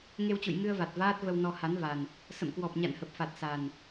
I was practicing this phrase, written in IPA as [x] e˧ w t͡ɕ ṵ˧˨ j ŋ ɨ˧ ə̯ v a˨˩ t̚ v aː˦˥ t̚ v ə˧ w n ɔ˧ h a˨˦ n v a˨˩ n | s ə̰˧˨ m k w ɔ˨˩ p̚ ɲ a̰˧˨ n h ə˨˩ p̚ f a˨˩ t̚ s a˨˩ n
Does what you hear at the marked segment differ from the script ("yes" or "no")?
yes